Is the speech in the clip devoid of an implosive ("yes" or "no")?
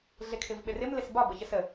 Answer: no